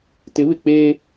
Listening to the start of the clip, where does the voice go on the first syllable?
rising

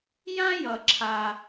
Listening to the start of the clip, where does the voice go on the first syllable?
high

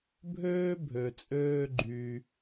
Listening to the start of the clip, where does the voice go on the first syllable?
high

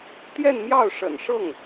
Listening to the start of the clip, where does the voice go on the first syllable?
falling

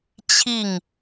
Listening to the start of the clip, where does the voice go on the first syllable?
falling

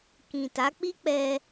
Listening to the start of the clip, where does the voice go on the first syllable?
low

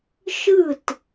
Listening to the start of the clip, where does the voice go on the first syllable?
falling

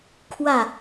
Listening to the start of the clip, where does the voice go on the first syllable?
falling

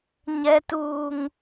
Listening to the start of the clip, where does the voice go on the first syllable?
high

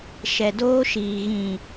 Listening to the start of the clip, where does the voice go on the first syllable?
low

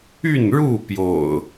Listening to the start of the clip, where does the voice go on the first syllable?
falling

